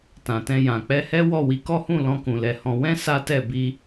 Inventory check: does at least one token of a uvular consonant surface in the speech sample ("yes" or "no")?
no